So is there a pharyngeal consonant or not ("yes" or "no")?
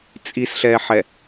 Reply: yes